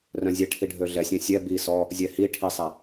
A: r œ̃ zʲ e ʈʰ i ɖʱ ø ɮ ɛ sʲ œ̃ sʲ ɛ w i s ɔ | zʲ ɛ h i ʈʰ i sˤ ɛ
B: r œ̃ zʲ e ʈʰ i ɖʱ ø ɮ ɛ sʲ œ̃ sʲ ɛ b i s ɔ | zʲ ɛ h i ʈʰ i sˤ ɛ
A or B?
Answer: B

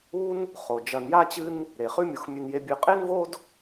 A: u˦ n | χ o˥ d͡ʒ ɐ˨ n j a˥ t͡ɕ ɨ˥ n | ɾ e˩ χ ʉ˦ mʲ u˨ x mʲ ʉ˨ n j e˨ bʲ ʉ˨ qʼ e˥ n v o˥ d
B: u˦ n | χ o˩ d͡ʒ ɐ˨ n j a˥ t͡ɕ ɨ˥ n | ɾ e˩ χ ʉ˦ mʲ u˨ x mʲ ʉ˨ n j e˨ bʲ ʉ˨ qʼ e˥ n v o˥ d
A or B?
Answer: B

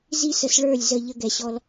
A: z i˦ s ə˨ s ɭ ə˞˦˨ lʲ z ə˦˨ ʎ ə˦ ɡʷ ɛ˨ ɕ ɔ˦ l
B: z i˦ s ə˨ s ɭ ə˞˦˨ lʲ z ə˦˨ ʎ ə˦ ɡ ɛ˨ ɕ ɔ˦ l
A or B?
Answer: B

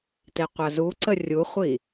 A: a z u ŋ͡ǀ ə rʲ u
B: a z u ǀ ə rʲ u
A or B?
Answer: B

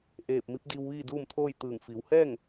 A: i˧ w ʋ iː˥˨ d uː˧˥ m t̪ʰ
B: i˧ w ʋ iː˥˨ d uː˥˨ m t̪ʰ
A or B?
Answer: B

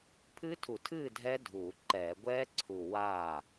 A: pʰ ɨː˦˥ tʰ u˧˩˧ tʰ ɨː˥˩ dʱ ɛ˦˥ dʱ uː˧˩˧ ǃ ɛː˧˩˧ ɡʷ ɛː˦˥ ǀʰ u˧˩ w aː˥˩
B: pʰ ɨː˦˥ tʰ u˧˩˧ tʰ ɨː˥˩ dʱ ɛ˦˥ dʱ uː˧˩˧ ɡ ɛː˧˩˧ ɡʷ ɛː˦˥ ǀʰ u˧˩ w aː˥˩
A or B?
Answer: A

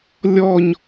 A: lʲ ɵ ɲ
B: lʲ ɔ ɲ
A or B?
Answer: B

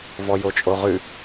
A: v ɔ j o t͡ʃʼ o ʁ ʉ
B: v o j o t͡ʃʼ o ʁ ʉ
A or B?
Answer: A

